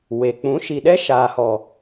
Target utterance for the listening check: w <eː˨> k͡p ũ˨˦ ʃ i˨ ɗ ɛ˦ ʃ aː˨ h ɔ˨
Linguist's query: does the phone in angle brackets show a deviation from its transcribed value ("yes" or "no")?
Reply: yes